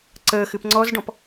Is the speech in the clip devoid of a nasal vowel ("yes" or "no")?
no